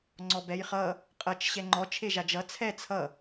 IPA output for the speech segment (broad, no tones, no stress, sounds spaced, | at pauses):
ŋ͡ǀ ɔ b ɛ j χ ʌ | qʼ ʌ t͡ʃ ɕ ɛ ŋ͡ǃ ɔ t͡ʃʰ e ʒ a d͡ʒ ʌ t͡sʰ ɛ t͡sʰ ʌ